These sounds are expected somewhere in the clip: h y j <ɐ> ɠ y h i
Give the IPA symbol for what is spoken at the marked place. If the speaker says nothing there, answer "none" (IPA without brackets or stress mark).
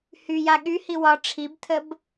a